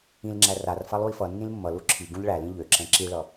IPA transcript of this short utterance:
ĩlŋ͡ǁæ rar falˠui̯fʌnːĩl mːʌlu ǁʰi ɡũʎɭælĩ ʎøǁɛ̃ ǁiɭʌ

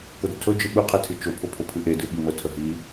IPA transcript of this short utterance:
kʊdətʰɵd͡ʒɨ ɓɯqʰetʰɨ t͡ʃʊpʰʊpʰʊ pʰɨʔedɨ ɓimətʰə ɦi

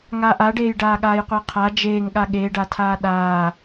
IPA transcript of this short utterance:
ŋaʔaɖeːj ɖaːɠaːjqʷeqʰa d͡ʒeːŋɠa ɠeɖatʰaː ɗaː

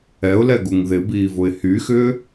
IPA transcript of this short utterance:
ɛʊ̯lɛɡuŋ ðɪbiːvʊɪ̯ hyxʏː

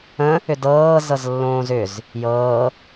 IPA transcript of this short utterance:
ə̃ | ʏdɤː zɤzlːõːzʏz | jɤː

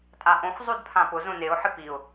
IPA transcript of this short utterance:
tʼaʔõx zˤudpʰãpʊ zõneʊ̯ħɪ piʊ̯

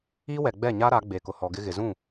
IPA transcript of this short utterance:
i˦wɛ˨ɡ͡bɛ˦˨ ɲa˦ɾa˨˦ɡ͡be˨ kʊ˨hɔ˨ɡɪ˦ɣɪ˨ zũ˦˨

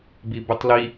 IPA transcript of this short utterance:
bibʉtˤli

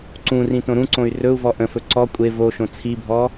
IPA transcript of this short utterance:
ǀũrĩ tõɾũǀõy̯ rɵu̯vɔ ʔə̃fɵ ǀɔ kʷʼe voʃõ t͡sʰibʱɔ

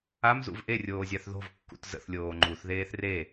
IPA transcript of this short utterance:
amzṵv ʔerʲoːzʲaθ ðo̤vkːṵt zə̰θlʲoː ŋ͡ǃuθðeːθ re

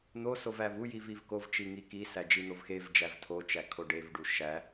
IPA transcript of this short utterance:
n̪osov ævujiv ivkovt͡ʃi ŋikisæ d͡ʒin̪ovxevd͡ʒæv tʰot͡ʃæ kʰoɖevɖu ʃæ

